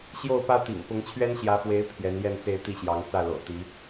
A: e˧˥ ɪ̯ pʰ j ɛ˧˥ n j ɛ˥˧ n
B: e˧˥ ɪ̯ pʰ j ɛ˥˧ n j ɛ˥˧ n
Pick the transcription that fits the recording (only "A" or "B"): A